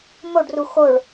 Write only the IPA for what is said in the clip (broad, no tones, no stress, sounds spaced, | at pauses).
m o ɖ r u x o ɭ